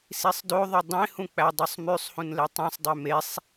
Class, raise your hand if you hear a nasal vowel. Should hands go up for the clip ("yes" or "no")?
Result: yes